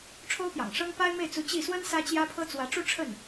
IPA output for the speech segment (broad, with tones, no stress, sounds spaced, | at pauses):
ʈ͡ʂʰ o˥ ʊ̯ p j ɑ̰˨˩ ŋ ʂ ɤ˥ ŋ p a˥ ɪ̯ m e˥˩ ɪ̯ t͡s u˧˥ t͡ɕ i˥˩ s w ə˥ n s ä˥ t͡ɕ j ä˥ pʰ ɤ˥ t͡s w ä˧˥ ʈ͡ʂ u˥˧ ʈ͡ʂʰ ə˥˩ n